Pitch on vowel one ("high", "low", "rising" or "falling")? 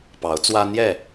rising